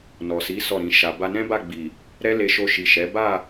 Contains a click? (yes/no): no